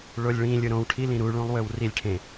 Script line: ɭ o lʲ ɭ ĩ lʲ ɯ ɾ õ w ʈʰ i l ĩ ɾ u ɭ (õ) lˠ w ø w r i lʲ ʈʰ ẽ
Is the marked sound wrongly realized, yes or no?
yes